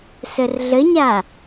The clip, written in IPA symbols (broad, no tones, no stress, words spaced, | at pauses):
sərɮəɲa